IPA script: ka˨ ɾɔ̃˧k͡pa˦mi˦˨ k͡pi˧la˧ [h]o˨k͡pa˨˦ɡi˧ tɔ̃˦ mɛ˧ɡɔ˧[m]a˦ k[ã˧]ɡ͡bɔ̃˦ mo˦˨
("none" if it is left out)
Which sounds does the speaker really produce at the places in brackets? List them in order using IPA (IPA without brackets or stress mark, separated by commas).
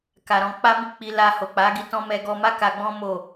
h, m, a˧